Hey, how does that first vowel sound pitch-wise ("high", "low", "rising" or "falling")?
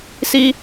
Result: high